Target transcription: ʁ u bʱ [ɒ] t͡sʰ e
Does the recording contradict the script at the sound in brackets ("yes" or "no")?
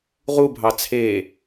yes